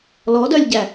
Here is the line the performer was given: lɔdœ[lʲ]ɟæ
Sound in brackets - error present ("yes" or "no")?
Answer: no